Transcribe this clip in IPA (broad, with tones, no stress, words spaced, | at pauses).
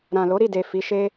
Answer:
ɾã˨lo˨˦ɾi˦˨de˨ fi˨˦ʃe˦